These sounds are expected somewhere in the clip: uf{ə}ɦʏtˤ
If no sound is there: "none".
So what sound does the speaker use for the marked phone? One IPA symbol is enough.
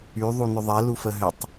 ə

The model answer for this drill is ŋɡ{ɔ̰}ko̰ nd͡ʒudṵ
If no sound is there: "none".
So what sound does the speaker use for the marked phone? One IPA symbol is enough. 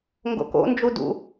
o̰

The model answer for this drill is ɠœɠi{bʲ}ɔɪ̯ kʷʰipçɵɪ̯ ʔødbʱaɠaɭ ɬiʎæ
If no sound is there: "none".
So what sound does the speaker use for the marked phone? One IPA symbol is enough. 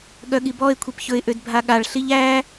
b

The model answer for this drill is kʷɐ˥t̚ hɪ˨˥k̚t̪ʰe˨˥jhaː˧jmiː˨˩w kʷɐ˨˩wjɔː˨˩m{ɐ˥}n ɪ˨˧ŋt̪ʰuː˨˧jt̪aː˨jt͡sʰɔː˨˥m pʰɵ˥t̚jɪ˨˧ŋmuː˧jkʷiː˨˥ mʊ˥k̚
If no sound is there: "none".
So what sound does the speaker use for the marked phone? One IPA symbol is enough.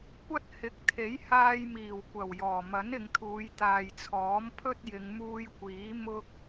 ɐ˨˥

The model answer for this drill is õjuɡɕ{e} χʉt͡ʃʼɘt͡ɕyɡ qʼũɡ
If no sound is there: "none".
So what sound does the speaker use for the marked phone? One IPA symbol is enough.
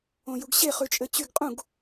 e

